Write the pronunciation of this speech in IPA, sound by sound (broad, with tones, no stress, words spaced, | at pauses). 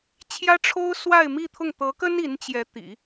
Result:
t͡ɕʰjä˥ʈ͡ʂʰo˥ʊ̯ swa˥˧ɪ̯mi˥˧t̪ʰʊ˥˩ŋ t̪ɤ˧˥kə˥n i˧˥nt͡ɕjɛ˧˥t̪ḭ˨˩˦